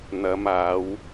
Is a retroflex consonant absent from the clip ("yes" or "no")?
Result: yes